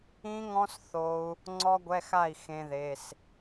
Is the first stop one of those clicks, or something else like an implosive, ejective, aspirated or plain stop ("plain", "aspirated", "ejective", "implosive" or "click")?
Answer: click